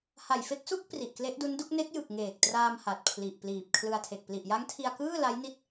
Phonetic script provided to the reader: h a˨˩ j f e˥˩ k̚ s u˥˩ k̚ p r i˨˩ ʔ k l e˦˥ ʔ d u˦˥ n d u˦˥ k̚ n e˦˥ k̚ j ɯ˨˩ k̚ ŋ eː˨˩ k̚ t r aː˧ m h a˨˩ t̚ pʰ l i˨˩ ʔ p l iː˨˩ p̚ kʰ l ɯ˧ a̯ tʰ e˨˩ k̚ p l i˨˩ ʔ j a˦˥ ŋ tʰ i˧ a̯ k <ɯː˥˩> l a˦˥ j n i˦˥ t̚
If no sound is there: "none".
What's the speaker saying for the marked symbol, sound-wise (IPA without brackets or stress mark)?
ɯː˥˩